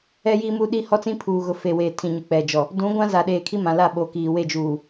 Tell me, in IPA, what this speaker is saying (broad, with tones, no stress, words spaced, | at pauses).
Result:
ɛ˦jiː˦mu˦ɗi˦ hɔ˦t͡sĩ˦pʰuː˨ɣʊ˨ fe˨weː˨ tʰĩ˨ɲu˨k͡pɛ˨d͡ʒɔ˨ | dũ˨˦ɡʷã˦ za˨ɗeː˨kʰi˦ mã˨la˦˨ ɓo˨kiː˨ we˦˨d͡ʒuː˨